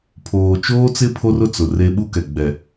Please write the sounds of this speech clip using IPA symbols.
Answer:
pʰoː˨t͡ʃoː˦t͡sɪ˦ pʰo˦rʊ˦t͡sʊ˨ re˦ ɓu˦kɛ˨ ɡ͡bɛ˨

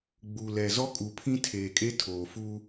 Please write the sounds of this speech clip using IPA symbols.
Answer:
ɡ͡bu˨lɛ˨ zɔ˦kʼu˨pʰĩ˦ tʰeː˨kʼe˦ tʰoː˨fu˦

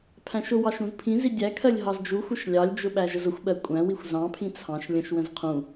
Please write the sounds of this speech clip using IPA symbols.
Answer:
pʰæ̃ʃʊwɑʃ ũzpʰĩzi dʲækʰɜlʲ ɦɑzd͡ʒuxʷəʃ lʲɑlʲd͡ʒʊ ɓæʒəzʊxʷɓɜ kʷʼæ̃wixʷ zɑ̃pʰĩ t͡sʰɑ̃ʃ lʲə̃ʃwə̃z qʰũ

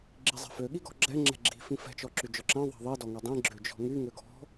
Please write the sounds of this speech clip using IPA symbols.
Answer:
ɡ͡ǁizˤɛ̤fø ɠiɡɔ̤ɡ͡ǁɛ ŋ͡ǁɛ̤ɡ͡ǁi̤ fĩfɛ̤ t͡ʃɔǁyd͡ʒɔǁɛ̃ ðˤɛ̤ðˤi dɔŋɛdˤĩ ɡ͡ǁød͡ʒɔ̤ŋy ŋøɡɔ̤

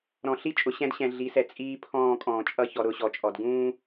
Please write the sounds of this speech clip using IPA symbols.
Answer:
ɾɔ̃˨ ɬi˦t͡ʃʼʊ˨ ɕɛ̃˦dɕɛ̃˨ ɮi˨˦sɛ˨ t͡sʼiː˦pʰɔ̃ː˦˨kʼɔ̃ː˨t͡ʃʼʌ˦ çɔ˨ɾʊ˦˨ɕɔ˨t͡ʃʼɔ˨d ɡũː˦

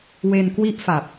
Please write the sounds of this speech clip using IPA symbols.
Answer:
we˧nkwi˥˩ʔfa˨˩p̚

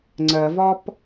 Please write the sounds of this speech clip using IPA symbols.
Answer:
ŋ͡ǀɜvɒp

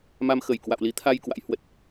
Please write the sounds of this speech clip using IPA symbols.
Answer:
ma˧mxə˧˩j kwa̰˧˨wli˨˦t̪ʰa˧j kwa̰˧˥jhwə˦˥t̚

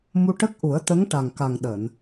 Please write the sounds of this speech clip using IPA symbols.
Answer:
mu˧ʈə˦˥k̚ ʔu˨˩˦ə̯t̪ə˧˥ŋ ʈa˨˩ŋka˨˩ŋ ɗəː˨˩˨n

